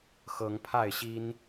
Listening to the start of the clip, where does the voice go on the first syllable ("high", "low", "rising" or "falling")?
rising